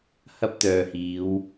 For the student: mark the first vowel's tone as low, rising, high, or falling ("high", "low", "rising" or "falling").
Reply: high